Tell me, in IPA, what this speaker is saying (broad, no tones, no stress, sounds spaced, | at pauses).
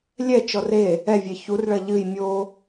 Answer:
lʲ ɛ t͡ʃ ɔ r e | ɛ vʲ ɛ ç u r ɭ ɐ ʎ ɨ j mʲ o